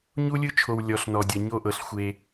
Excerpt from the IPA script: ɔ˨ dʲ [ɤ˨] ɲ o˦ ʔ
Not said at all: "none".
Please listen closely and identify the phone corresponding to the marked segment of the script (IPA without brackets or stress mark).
ɤ˨